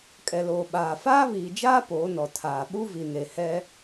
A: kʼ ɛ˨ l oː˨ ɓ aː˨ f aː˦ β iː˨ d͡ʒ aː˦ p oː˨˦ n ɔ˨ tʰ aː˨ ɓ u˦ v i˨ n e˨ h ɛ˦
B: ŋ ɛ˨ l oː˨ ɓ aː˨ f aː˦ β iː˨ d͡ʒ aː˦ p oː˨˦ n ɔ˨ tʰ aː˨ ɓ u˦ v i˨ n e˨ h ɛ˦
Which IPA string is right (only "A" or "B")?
A